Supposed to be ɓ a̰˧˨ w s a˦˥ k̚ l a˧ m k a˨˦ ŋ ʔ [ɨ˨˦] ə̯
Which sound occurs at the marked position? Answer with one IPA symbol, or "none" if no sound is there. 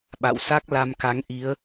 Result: i˨˦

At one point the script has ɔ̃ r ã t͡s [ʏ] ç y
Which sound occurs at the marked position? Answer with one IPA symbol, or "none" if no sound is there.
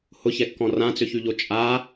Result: ʏ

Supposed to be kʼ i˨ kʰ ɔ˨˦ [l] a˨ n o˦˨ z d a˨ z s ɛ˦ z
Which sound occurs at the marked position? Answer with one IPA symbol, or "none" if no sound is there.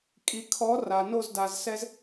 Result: r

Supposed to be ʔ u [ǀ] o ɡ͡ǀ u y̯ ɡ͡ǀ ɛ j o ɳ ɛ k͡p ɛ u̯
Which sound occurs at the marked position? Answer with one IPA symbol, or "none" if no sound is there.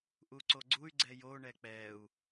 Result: ǀ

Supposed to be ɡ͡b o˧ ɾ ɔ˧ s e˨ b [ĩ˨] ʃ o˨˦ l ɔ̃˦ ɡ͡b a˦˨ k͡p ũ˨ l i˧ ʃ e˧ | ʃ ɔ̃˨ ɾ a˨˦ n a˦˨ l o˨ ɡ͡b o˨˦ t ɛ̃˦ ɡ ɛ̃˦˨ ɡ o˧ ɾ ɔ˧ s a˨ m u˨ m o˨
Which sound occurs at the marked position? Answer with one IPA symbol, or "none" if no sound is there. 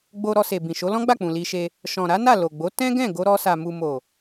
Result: ĩ˨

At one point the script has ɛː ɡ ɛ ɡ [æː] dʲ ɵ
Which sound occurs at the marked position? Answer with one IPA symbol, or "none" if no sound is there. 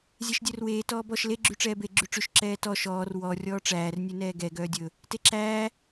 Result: œː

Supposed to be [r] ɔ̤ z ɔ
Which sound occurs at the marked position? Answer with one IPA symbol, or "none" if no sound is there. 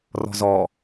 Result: r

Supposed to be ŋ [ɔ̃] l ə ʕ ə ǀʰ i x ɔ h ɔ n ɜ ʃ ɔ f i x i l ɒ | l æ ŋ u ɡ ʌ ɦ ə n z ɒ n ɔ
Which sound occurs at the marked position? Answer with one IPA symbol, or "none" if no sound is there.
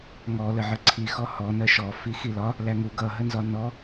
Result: ɔ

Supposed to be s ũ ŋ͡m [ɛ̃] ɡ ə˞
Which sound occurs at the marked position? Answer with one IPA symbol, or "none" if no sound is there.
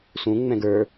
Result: ɛ̃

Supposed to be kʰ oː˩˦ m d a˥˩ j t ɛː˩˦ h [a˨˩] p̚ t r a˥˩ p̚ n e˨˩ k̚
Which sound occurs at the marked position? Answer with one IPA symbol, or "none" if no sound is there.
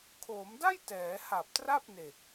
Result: a˨˩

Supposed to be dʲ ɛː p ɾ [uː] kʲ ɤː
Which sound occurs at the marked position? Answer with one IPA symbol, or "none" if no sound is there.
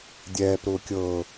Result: ʊː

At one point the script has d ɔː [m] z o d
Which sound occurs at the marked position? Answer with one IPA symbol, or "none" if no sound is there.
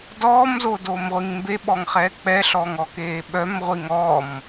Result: m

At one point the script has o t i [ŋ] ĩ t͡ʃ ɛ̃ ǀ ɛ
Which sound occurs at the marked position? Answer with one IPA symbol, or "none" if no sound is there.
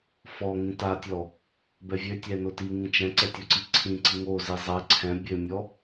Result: ŋ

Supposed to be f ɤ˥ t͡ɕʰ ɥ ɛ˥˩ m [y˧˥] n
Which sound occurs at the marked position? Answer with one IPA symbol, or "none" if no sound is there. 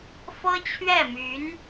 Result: y˧˥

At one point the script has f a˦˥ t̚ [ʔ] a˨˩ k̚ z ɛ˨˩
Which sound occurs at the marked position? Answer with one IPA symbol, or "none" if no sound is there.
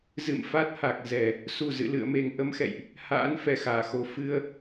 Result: h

